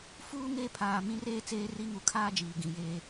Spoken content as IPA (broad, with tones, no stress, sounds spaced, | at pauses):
f uː˦ ŋ e˦˨ pʰ aː˨ m ĩ˦ r eː˦ t͡s eː˦ r i˦ ŋ u˨ kʰ aː˦ d͡ʒ iː˨ ɡ ĩ˨ j eː˦